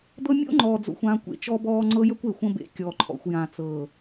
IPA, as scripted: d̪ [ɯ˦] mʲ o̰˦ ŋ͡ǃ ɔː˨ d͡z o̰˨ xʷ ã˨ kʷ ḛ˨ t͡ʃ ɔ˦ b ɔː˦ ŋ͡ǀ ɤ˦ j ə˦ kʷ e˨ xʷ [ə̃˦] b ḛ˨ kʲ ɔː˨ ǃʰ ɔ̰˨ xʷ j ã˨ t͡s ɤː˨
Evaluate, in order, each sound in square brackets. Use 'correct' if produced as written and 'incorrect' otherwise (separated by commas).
incorrect, correct